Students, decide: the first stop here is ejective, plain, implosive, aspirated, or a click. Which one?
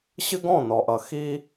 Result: plain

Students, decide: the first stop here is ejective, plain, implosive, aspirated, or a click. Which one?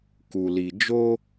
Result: plain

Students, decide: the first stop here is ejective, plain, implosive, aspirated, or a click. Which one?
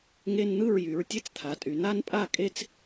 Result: plain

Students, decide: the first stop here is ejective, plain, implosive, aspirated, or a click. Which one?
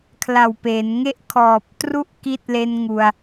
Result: aspirated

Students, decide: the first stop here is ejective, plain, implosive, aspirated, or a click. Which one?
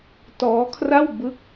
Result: plain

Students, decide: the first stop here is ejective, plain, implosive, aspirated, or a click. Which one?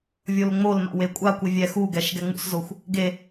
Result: ejective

